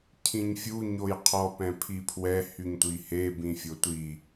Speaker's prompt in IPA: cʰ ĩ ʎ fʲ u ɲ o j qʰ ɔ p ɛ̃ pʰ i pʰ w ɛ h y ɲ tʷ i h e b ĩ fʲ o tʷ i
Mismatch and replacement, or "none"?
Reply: ʎ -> ɲ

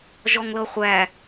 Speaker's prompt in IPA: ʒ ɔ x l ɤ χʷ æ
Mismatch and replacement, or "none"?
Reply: x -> ŋ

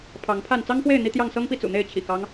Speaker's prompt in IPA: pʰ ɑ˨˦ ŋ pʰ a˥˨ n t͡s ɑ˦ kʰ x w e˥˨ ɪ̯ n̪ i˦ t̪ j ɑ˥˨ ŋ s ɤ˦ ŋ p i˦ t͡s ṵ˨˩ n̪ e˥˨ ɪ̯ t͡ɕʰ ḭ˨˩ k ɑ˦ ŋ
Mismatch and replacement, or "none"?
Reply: kʰ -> ŋ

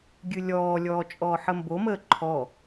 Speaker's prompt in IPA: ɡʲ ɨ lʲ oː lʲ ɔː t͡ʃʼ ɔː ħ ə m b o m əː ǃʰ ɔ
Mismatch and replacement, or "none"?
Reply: oː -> ɔː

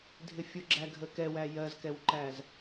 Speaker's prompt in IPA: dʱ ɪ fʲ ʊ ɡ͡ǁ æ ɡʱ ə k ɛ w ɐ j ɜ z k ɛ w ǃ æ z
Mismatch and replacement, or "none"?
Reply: ɐ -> æ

